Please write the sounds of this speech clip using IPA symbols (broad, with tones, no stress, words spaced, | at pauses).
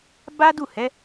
ba˦du˦˨hɛ˨˦